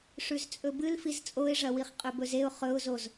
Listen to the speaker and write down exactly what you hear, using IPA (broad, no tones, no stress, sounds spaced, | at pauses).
ʂ ʉ z t͡sʼ ɵ b ɨ l f i z t͡sʼ o ɪ̯ ʐ ɐ w i χ qʼ ɵ b ɵ z e ʊ̯ χ ɵ ʊ̯ z o z